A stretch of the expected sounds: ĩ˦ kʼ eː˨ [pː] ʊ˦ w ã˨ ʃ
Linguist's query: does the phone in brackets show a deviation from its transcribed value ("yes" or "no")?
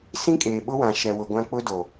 yes